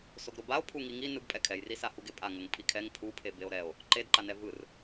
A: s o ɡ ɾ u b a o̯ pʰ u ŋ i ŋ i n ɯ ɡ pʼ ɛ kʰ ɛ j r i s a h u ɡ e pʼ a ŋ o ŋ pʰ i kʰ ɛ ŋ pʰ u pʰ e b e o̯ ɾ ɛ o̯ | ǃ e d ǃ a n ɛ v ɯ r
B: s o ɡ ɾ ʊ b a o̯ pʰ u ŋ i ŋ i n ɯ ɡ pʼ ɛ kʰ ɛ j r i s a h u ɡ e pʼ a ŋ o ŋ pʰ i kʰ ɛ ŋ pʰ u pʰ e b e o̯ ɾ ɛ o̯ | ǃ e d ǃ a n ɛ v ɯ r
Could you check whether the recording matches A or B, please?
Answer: B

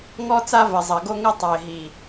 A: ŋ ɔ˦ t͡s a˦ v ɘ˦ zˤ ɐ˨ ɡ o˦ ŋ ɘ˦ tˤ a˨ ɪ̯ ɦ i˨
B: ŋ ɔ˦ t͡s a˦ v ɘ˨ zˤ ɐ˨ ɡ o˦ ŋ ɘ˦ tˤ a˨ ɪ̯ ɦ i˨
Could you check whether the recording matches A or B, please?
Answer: B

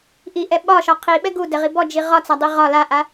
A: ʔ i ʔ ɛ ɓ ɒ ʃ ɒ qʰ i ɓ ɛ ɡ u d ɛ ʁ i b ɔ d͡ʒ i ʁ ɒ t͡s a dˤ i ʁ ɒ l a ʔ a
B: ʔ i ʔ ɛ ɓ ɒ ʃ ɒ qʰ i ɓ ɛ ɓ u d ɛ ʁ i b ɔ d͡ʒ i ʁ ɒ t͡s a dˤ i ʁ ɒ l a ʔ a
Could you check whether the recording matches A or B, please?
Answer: A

